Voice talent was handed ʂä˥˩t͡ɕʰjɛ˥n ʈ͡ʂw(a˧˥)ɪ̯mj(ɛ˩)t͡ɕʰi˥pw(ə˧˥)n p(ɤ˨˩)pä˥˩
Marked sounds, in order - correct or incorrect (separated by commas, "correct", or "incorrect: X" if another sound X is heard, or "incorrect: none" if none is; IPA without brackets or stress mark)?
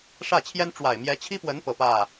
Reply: incorrect: a˨˩, incorrect: ɛ˧˥, correct, correct